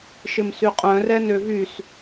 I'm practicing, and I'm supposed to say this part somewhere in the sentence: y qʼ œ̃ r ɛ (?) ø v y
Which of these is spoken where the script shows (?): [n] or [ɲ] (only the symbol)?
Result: n